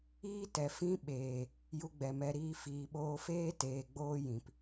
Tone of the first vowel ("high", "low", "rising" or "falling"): high